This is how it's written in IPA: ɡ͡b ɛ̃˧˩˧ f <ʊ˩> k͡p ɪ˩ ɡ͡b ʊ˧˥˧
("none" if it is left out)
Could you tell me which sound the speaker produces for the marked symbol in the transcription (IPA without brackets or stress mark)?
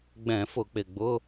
ʊ˧˩˧